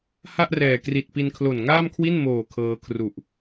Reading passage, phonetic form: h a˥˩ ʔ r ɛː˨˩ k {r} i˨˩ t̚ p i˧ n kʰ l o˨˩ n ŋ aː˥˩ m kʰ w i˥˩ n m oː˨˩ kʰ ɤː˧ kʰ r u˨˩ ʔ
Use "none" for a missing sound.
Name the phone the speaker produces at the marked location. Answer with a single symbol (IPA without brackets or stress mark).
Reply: r